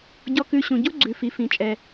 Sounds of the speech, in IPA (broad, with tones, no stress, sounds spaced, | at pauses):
ɟ ɔ˧ k ʉ˧ ɕ ũ˩ ɟ u˥ ɡ͡ǀ ʉ˩ f i˩ f ĩ˩ t͡ʃʼ ɛ˩